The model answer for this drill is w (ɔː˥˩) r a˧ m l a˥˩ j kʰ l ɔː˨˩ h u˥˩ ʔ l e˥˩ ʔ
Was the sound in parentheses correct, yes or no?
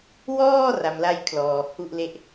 yes